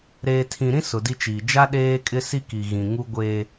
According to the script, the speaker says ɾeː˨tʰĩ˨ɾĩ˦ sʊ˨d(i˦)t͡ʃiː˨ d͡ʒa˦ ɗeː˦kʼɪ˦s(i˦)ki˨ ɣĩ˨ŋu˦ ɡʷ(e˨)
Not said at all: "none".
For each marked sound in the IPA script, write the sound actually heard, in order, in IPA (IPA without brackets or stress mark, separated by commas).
i˦, i˦, e˨